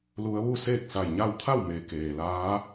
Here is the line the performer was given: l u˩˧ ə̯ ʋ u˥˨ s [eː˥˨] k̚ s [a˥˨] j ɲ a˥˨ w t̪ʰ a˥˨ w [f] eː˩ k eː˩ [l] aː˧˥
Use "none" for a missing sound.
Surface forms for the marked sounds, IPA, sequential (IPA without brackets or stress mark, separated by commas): eː˥˨, a˧˩, m, l